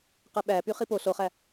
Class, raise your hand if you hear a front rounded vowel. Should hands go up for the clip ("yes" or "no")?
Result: yes